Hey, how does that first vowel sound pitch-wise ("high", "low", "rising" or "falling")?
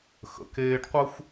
low